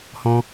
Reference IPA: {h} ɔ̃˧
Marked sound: correct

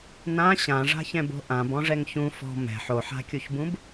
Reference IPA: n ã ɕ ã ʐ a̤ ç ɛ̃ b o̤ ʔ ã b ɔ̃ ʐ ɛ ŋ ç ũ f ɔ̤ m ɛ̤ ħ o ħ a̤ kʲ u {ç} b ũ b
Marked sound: correct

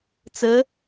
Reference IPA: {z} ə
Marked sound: incorrect: t͡s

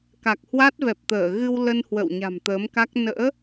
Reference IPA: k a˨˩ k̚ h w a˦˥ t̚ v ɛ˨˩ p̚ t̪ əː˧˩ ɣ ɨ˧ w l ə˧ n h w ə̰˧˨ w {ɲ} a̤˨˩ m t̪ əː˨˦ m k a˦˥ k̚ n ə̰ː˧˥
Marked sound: correct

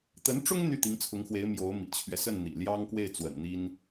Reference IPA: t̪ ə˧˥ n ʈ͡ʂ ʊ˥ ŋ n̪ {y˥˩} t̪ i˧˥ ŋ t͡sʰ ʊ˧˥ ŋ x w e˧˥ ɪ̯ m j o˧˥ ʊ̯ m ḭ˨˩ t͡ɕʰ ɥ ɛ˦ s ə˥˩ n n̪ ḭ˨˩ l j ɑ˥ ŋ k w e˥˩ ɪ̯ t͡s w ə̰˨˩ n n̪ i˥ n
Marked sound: correct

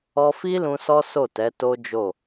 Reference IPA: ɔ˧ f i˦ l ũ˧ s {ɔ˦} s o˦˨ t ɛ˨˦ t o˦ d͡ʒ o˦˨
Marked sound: correct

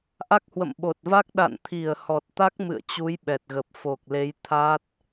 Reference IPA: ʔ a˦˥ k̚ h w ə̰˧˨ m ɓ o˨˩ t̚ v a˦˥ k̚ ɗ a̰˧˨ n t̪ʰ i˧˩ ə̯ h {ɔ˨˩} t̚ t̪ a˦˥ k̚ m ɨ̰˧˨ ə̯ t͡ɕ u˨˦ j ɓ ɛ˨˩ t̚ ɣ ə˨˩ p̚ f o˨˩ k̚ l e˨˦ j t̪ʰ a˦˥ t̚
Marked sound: correct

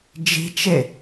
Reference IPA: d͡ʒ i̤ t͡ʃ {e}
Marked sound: correct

